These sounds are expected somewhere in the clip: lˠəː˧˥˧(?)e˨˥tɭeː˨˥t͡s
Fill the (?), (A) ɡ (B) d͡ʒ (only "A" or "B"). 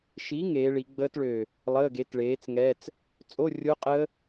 A